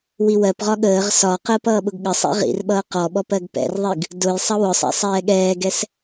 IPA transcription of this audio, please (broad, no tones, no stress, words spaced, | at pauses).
wiwɜpʁɒ ɠəːʁ sɒqəːp ʌːɓʊɡɠəsˤḭ ʁḭrɓʌː qɔɓɔp ɜɡpɛ̰rðˤiɡ | dʊj sˤʌwʊsˤɛ̰ sˤɛːɠɛːɡɛs